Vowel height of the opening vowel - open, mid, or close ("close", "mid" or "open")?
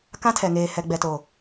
open